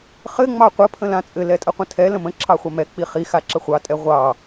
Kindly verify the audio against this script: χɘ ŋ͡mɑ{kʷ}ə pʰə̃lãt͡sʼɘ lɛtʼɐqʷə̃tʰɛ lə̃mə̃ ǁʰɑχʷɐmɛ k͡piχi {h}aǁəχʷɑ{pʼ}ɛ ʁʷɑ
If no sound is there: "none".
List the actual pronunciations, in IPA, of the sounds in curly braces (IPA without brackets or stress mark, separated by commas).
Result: qʷ, x, tʼ